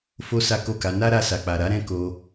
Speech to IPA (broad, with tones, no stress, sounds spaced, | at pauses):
f o˦ s a˦ k o˦˨ k a˨˦ n a˦ ɾ a˧ s a˨ k͡p a˨ ɾ a˨˦ ɾ ɛ̃˦ k o˧